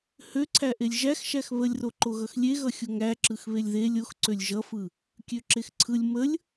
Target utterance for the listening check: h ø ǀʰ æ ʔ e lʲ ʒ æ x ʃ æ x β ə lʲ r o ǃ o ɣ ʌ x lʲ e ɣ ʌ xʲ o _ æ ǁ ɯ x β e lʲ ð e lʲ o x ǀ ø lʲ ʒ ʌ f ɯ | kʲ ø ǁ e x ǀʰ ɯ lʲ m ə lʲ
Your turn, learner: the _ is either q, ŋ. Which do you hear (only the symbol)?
ŋ